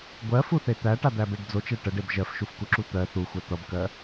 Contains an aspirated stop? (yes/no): no